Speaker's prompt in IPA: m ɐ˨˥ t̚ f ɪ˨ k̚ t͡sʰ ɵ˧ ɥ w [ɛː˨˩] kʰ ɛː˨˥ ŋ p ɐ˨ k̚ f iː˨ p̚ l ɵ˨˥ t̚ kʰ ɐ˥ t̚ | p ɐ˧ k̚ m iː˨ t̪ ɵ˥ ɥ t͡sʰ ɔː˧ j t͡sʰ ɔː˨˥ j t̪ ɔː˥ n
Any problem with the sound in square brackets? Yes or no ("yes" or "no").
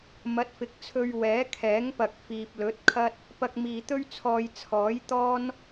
yes